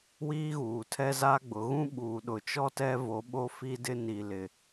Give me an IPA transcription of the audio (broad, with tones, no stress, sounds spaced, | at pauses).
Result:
w iː˦ ɣ uː˨ tʰ ɛ˦ z a˦ ɡ͡b ʊ˨˦ ɣ ũ˦ ɓ uː˨ ɗ ʊ˨ t͡ʃ ɔ˦ t ɛ˦ v o˨˦ ɓ o˦ f i˦ d ɪ˦ n i˨ l ɪ˨